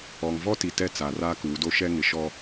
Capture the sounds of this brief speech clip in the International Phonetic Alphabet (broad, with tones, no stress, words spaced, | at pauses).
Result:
ɔ˨ŋvɔ˦ti˨ tɛ˦ t͡saː˨raː˦kuː˨˦do˦ ʃɛ˦ŋɪ˨ʃɔ˦